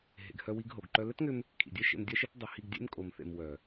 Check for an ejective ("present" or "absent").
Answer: present